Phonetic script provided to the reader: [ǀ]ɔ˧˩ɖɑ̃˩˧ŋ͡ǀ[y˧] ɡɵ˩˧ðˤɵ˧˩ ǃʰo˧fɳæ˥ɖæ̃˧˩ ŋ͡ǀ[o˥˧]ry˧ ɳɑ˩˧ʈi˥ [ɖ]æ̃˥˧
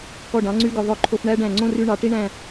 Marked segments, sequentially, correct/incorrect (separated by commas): incorrect, correct, incorrect, incorrect